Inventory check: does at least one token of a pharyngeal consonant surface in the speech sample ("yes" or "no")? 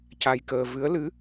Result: no